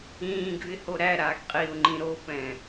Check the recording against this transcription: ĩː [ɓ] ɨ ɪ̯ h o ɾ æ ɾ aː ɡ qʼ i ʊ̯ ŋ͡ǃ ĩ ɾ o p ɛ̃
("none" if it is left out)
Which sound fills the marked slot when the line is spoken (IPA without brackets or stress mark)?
ɡ